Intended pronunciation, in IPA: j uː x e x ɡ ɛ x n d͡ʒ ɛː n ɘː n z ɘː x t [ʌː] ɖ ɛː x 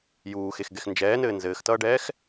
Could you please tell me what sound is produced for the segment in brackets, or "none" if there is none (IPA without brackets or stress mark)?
ʌː